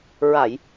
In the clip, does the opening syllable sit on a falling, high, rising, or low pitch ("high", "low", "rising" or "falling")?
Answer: low